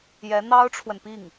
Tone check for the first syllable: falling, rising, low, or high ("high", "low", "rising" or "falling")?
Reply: rising